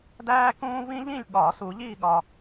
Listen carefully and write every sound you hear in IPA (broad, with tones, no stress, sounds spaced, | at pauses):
d æː˥ k ũː˥ v ĩ˥ ʎ ĩ˥˧ lʲ ɠ ɒː˨˩˦ s u˨˩˦ ʎ iː˥˧ ɠ ɒ˨